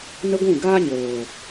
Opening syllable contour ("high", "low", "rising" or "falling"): high